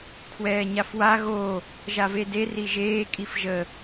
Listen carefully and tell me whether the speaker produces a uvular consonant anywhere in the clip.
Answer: no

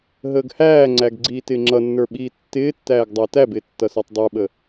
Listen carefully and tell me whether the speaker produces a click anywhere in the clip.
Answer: yes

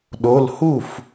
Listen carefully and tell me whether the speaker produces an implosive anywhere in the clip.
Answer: yes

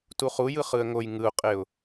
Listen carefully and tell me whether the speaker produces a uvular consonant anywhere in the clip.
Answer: yes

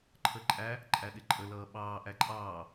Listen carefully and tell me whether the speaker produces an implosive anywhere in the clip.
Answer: yes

